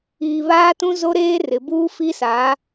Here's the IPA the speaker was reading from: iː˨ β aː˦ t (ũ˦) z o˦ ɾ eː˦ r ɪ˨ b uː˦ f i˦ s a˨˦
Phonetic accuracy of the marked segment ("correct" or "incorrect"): correct